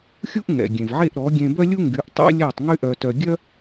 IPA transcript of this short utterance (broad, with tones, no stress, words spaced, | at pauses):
xʲu˥ʔŋɛ̰˩ɡʲẽ˩vʕe˥˩ʔ ɾɔ˩˥ɡʲẽ˧bœ˥lʲu˥ ŋɡy˩˥ʔtˤɛ̰˥lʲæ˥˩tˤ ŋy˥ʔœ˧tœ˧ ɡʲœ˥